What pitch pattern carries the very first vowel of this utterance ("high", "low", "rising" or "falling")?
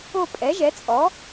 falling